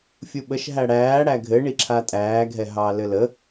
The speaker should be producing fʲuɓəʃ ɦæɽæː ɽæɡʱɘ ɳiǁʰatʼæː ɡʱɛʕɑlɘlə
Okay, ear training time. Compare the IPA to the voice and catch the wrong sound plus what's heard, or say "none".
ʕ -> ɦ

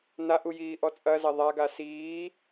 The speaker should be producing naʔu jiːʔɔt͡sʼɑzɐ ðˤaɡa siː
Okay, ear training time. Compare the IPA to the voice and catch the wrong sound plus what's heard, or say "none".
ɑ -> ɐ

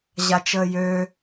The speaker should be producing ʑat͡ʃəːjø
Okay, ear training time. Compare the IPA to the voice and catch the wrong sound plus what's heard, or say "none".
none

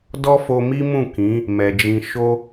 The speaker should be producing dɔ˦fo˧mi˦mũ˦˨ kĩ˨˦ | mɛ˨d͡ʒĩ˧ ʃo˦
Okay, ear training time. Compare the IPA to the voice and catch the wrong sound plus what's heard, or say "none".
none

